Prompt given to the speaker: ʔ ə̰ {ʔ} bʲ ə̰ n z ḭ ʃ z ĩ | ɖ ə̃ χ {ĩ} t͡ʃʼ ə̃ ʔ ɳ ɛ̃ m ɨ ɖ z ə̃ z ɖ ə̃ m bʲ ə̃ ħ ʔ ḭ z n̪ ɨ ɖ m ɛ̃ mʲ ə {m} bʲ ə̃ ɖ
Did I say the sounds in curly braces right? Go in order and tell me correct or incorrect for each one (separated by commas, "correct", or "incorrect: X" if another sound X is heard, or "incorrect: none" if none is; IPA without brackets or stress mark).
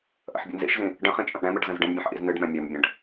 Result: incorrect: ħ, correct, correct